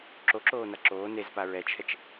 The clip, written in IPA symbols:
ǁ o ǁ oː n a ǁ oː n e z p a ɹ ɛ t͡ʃʰ ɛ t͡ʃ

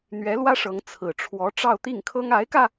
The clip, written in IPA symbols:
n̪ ɥ ɛ˧˥ l w ä˥ ʂ ɤ˧˥ ŋ t͡sʰ ɹ̩˨˩ ʈ͡ʂʰ w ɔ˧˥ ʈ͡ʂ ɑ˥˧ ʊ̯ t̪ i˥˩ ŋ kʰ ɤ˥ ŋ a˧˥ ɪ̯ k ä˧

